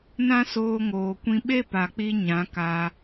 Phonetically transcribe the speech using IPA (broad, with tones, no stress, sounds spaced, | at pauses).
n ã˦ s oː˧ ŋ oː˨ kʷ ĩ˧ ɓ e˦ p a˨ k͡p i˧ ɲ ã˨˦ k aː˧